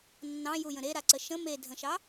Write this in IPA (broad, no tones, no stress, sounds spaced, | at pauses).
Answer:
nː ɑ̃ j u j ə̃ ɾ e ɾ a ǀ ə ʃ ə̃ m e dʱ ə̃ ʃ ɑ